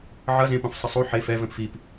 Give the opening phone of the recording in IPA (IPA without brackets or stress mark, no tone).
ʕ